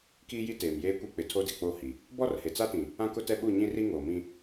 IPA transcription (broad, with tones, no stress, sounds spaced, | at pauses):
k iː˦ j i˦ t eː˨ m j eː˦ kʷ i˦ k͡p ɪ˨ tʰ o˦ d ɪ˨ k͡p o˦˨ h i˨ | b ɔ˦ r h e˨ t͡s a˦ t ĩ˨ | ã˦ k ʊ˦ t ɛ˦ ɓ u˦˨ ɲ ĩ˦ r i˦ ŋ oː˨ m ĩ˦